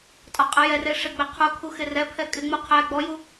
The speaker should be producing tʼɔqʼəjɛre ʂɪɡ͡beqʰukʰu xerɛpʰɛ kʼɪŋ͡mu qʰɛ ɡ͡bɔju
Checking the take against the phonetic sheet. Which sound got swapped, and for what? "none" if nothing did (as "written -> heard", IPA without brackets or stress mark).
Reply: none